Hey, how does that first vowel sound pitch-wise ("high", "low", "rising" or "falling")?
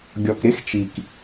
low